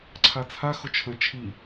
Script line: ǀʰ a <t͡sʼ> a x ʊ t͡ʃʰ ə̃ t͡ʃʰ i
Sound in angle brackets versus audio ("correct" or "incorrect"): incorrect